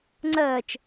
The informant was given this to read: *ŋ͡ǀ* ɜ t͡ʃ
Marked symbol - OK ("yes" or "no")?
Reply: yes